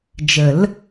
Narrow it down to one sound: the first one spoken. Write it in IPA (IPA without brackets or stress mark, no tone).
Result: d͡ʒ